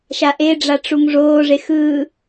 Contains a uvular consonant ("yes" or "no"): no